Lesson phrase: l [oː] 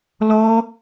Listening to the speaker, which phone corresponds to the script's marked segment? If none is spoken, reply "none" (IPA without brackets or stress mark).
ɔː